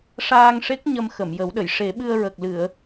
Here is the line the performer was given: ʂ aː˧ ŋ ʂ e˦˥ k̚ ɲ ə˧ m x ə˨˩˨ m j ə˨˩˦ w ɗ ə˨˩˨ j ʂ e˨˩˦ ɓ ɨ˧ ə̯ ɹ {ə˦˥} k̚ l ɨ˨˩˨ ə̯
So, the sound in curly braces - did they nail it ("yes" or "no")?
no